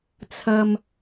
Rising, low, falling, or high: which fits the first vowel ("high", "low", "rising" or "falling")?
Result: low